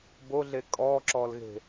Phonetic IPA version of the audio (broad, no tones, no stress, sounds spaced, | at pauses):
b o ɮ e kʼ ɔ ǁ ɔ l ɣ e̤